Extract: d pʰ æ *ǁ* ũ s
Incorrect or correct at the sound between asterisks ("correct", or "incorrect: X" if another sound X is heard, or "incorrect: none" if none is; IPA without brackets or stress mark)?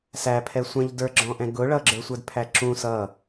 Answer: correct